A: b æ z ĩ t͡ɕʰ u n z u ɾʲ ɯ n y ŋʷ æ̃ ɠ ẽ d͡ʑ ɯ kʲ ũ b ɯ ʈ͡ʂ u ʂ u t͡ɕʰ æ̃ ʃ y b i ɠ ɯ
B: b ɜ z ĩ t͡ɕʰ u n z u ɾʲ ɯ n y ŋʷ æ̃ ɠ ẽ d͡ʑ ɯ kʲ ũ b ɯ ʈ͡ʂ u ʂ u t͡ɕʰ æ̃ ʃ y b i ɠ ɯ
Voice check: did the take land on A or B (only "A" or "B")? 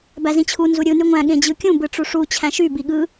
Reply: A